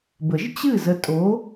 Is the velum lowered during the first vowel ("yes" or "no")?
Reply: no